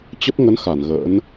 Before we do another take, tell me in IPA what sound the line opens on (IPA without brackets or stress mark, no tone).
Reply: t͡ɕ